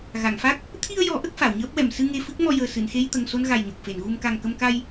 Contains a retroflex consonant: no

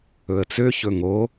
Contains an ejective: no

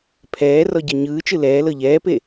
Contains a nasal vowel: no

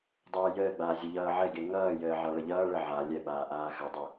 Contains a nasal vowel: no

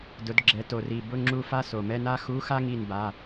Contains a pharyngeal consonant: no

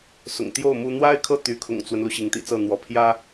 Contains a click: no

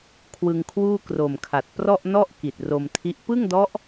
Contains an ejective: no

